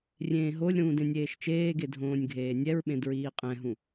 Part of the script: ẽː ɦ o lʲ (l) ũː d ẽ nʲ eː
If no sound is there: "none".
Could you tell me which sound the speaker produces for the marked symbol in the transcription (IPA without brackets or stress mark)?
ɾ